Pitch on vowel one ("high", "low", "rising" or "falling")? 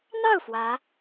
falling